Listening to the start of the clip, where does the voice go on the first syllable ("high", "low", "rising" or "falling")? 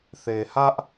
low